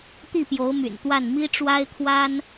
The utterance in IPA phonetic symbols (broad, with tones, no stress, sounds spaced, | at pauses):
t̪ i˥˩ p j o˧˥ ʊ̯ m y̰˨˩ n t̪ w a˥˩ n m i˥ ʈ͡ʂ w a˥ ɪ̯ t̪ʰ w a˥ n